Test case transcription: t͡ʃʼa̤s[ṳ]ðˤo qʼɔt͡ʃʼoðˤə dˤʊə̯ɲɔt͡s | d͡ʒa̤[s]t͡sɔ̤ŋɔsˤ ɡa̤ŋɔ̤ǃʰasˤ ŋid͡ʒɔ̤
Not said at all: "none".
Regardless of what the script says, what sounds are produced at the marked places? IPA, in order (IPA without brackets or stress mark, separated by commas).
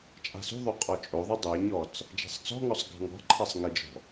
ṳ, sˤ